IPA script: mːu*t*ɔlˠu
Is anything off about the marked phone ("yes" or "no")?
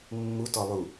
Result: no